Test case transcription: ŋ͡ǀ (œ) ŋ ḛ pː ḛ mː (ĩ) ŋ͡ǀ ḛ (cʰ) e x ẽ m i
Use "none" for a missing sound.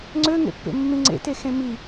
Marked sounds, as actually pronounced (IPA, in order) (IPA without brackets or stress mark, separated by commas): ø, ĩ, t